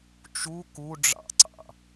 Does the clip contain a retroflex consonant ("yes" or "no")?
yes